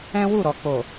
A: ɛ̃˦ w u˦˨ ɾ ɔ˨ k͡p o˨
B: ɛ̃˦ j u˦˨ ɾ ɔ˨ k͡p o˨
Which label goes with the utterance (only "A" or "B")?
A